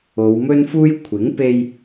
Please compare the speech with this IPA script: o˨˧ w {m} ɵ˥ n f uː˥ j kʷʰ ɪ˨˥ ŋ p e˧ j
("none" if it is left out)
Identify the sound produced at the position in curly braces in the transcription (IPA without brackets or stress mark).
m